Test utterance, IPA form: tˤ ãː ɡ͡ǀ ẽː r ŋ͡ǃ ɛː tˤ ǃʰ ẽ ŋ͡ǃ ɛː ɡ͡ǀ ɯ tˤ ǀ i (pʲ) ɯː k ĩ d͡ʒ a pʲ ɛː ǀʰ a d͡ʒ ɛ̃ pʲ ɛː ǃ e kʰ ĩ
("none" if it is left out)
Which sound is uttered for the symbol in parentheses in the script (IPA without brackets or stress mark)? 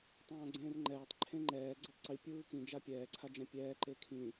pʲ